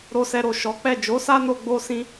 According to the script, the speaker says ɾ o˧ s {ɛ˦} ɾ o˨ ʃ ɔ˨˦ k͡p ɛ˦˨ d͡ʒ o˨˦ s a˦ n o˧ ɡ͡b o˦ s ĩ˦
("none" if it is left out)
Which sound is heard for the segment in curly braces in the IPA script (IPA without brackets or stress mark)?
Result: ɛ˧